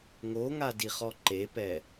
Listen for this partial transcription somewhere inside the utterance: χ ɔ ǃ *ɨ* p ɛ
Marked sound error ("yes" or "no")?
yes